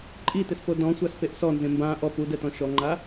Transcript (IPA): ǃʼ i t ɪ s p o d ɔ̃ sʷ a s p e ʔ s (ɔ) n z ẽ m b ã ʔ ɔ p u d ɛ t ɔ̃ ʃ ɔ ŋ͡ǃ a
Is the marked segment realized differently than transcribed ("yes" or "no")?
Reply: no